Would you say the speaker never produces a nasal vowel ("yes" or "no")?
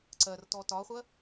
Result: yes